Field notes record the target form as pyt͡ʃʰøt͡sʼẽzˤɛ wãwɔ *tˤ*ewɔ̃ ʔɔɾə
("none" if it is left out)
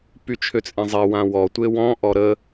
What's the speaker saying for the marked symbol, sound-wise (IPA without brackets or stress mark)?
tʷ